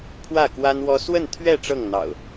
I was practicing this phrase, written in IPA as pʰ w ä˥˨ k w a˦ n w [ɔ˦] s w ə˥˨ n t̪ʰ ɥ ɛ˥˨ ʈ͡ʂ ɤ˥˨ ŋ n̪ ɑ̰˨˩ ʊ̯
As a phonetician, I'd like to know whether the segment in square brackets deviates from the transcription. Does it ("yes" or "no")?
no